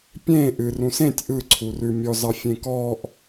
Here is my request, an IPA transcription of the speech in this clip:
pʲ ẽ ʔ ɨ r ũ s ẽ tʲ ʔ ɯ ǀʰ u r ʉ mʲ ɔ z ɑ fʲ ẽ k ɔː ʔ

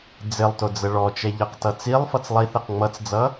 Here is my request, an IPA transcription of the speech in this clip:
d͡z ɪ lˠ t ʊ d͡z ə ɭ ɔ t͡ʃ ɛ ʎ ʌ q t ʌ t͡s i lˠ f ʌ t͡s lˠ i θ ɛ q ŋ͡m ʌ t͡s d͡z ʌ

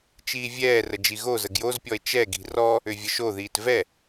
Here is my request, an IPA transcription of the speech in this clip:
t͡ʃ iː vʲ ɛː r ə d͡ʒ i ɣ o z ə ɡ j o z pʲ ɔ e̯ t͡ʃ ɛ ɡ i̤ r ɔ | ʏ vʲ ə ʃ o ð iː t v ɛ

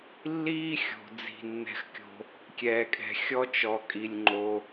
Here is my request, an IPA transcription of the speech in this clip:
lː iː˥ xʲ o̤˩ d͡z i̤˩ nː ɛ̤˩ x kʲ o̤˩ | kʲ ɛː˩ kʼ ɛ̤˩ xʲ ɔ˥ t͡ʃ ɔ˩ kʼ i˩ lʲ ŋ͡ǃ o˩

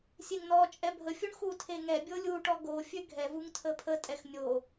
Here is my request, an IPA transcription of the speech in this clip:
sʲ e ŋ n ɔ t͡ʃʼ ɛ bʱ ə fʲ u ɳ x u tʰ e ŋ ɛ bʲ o lʲ u ʈ ɔ ɡ o fʲ ø ɡʱ ɛ v u ŋ tʰ ə pʰ ə tʼ ɛ x nʲ o

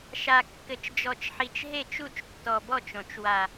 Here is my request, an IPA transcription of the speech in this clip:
ʃ a˨ kː ɘ˨ t͡ʃ d͡ʒ ɔ˨ t͡ʃ ħ i˨ t͡ʃ ɦ e˦˨ t͡ʃ u˦˨ t͡ʃ tː ɔ˨ b ɔ˦˨ t͡ʃ õ˨ t͡ʃ w a˨

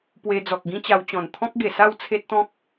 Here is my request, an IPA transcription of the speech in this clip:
p w e˧ d͡z ɔ˨ k̚ ɡ ĩ˦ t͡ɕ a˧ w t͡ɕ ɔ̃˨˩ n t̪ʰ ɔ̃˦ k̚ ɡ e˨˩ s a˥˧ w t͡sʰ e˦ t̚ t̪ ɔ̃˦ k̚

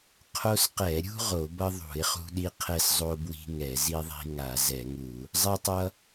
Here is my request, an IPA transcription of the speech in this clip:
qʰ o˦ s q ɛ˧˩˧ ɾʲ ṳ˦ ʁ o˧˩˧ b ʌ˦ ðˤ ṳ˧˩˧ ɪ̯ χ ṳ˦ ɗ i˦ qʰ ɛ˦ s zˤ o˦ b w i̤˦ ŋ ɛ˧˩˧ z i˦ ðˤ i̤˦ ŋ a˧˩˧ z ɛ˧˩˧ ŋ u˧˩˧ | zˤ ɛ˦ tˤ ʌ˦

